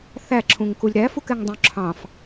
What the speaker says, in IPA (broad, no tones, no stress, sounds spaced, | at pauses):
θ æ ǁʰ ũ ŋ k u lʲ ɾ æ f u k ɛ ŋ dˤ ũ ǁʰ ɑ̃ f